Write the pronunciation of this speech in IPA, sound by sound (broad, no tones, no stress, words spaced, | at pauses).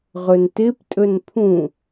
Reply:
ʁɵntɪp tʼɵnpʰũ